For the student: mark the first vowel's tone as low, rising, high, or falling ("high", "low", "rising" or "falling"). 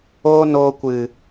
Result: high